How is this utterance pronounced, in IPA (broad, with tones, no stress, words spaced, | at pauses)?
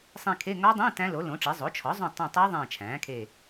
sˤĩ˦˨kʰe˧˥˧ ŋɒ˦˥dˤĩ˧˥˧ tæ̃˦˥lo˩˥lõ˩˥ʈ͡ʂi˩˥ zˤo˩˥t͡ʃʰɒ˩˥zˤõ˦˨ tˤõ˦˨ tˤe˦˥ ðˤẽː˦˨t͡ʃʰæ̃ː˩˥kʰe˦˨